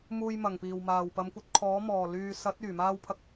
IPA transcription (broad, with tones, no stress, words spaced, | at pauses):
muː˧j mɐ˨˩ŋ piː˨˩wmaː˨˩w pɐ˨˧mkʷɐ˧t̚kʰɔː˨˥ mɔː˨˩lyː˨sɐ˨˥t̚ yː˨˩maː˥wpʰɐ˥k̚